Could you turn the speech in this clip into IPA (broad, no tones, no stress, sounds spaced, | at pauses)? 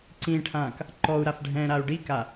ǀ ĩ ʈʰ ãː k | ǃ ɔ u̯ ɾ a f ɖʱ ɛ̃ː ɾ a u̯ ɖ i k a